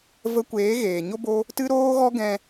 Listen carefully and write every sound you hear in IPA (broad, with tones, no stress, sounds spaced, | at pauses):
v ə˧ kʷ eː˨˦ ɣ eː˨ ɲ o˦ b o˦ | t ɨ˦ ɾ oː˦ ɣ ɔ˦ ɡ ɛ̃˧